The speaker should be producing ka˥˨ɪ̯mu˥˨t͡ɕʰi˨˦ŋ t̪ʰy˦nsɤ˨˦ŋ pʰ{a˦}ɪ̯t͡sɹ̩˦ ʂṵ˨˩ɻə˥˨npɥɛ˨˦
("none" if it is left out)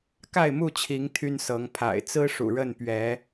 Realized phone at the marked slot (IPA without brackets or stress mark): a̰˨˩